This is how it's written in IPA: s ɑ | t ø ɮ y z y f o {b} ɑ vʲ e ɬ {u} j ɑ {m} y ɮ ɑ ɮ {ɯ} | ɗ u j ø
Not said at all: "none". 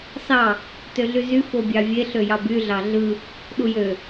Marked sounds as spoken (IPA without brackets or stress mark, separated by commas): bʲ, ø, b, ɯ